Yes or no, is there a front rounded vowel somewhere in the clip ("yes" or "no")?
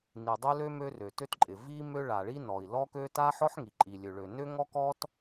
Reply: yes